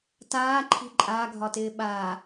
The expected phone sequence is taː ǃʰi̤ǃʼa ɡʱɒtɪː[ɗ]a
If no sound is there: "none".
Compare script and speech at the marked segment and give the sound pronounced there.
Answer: ɓ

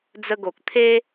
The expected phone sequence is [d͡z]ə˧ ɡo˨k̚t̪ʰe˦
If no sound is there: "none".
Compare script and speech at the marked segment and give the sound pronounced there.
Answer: d͡z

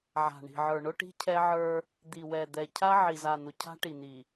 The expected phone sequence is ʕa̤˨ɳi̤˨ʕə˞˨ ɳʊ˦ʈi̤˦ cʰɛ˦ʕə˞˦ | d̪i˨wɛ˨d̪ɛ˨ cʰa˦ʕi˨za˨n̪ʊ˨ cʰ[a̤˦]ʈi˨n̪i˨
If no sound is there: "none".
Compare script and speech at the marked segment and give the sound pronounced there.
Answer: a̤˦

